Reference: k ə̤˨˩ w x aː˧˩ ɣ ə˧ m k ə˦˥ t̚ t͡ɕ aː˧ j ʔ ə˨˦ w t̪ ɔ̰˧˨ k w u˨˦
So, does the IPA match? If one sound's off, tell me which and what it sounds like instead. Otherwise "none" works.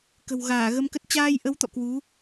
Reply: x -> ɣ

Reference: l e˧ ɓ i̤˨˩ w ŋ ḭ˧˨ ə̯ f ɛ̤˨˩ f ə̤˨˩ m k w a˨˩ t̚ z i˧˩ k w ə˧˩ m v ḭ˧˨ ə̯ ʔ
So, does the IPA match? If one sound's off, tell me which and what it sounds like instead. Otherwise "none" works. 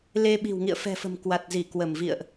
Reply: none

